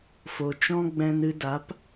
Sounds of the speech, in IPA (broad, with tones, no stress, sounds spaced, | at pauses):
f o˨ t͡ʃ ɔ̃˦ ɡ͡b ɛ̃˧ n ɨ˧ d a˨˦ p